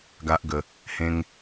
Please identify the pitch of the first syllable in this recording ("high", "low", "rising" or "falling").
high